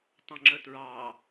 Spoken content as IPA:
tˤ ɐ̃ ŋ͡ǁ ə t ɹ ɑ

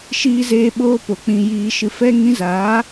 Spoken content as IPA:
ʃ iː˧ z eː˧ ɓ oː˦ p o˨ k͡p ĩ˧ j iː˧ ʃ ɨ˧ f ɛ˧ ŋ ĩ˧ z aː˨˦

